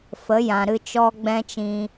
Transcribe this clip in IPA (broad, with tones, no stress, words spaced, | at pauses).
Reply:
fə˨˦jã˨ ɾɨ˧t͡ʃɔ˦ɡ͡bɛ̃˦t͡ʃĩ˧